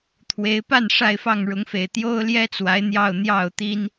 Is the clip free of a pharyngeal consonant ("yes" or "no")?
yes